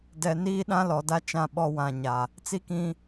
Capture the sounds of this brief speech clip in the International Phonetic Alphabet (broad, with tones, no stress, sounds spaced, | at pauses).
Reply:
d ɛ˨ n iː˦ ɗ ã˦ l ɔ˨ d a˦ t͡ʃ ã˦˨ ɓ ɔ˦ w ã˨ ɲ a˨ | t͡s i˦ k ĩ˦